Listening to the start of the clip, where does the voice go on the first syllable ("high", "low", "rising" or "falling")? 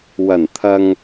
low